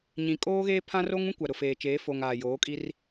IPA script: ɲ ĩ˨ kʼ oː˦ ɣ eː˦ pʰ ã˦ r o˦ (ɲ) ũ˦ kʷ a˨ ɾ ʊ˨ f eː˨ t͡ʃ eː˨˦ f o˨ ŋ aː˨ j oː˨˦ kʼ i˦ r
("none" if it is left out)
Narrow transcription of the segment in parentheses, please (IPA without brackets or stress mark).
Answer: ŋ